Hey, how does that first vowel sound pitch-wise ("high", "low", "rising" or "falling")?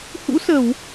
rising